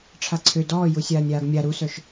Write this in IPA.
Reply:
ʈ͡ʂʰ a ǀʰ ø d ɔː j u sʲ aː nʲ aː ɡ mʲ a ɾ u s œ ʃ

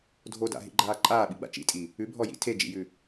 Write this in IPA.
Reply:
dʱ o d a̰ ɦ ḭ ɡ͡ǃ aː ǃʼ aː ɓ i ɡ͡b a̰ t͡ʃ ḭ tʼ i | ʉ bʱ ɔ j ḭ tʰ e d͡ʒ ḭ j ʉ

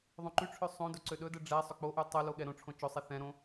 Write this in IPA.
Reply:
ðˤ õ ǃ y ʈ͡ʂʰ ø sˤ õ d ɵ ǀ ø ɗ ɵ d ɛ ɖ͡ʐ ɛ sˤ ɵ k͡p o ʔ y tˤ ɵ l o ɠ ɛ ɾ õ ʈ͡ʂʰ õ t͡ʃ ɵ sˤ ɛ θ ɛ̃ ɾ õ

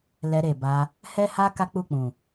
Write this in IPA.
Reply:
l ɛ˧ ɾ e˨ b a˧ | h ɛ˦ h a˦ k a˦ k͡p u˦˨ k͡p ũ˨

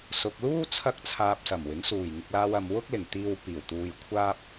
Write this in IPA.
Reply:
s ʊ˨ k̚ l uː˥ t͡sʰ ɐ˥ k̚ t͡sʰ aː˨ p̚ s ɐ˨˩ m w ɪ˨˥ ŋ s uː˨˩ j ŋ ɪ˨ k̚ l aː˧ w ɐ˨ m w ʊ˥ k̚ l ɪ˨˩ ŋ t̪ iː˧ w p iː˨˩ w t̪ uː˧ j kʷʰ aː˥ p̚

